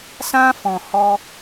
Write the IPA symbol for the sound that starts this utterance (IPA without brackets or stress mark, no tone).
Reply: s